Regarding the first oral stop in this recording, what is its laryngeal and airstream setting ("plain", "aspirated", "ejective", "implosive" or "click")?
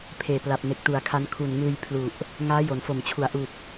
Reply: aspirated